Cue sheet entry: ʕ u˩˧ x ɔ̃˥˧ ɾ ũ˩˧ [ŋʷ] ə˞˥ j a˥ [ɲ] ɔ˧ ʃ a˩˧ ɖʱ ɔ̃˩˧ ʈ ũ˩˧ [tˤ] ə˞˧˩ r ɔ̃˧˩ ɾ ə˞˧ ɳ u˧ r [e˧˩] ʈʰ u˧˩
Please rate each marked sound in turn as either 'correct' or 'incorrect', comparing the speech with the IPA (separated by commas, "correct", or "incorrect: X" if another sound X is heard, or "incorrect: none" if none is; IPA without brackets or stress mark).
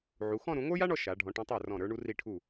correct, incorrect: ɳ, correct, incorrect: i˧˩